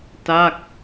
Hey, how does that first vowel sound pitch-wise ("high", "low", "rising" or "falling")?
falling